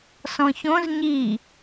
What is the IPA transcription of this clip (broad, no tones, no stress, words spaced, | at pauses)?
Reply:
sɔ̃çõz ɲi